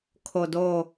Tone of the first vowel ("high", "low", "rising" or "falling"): low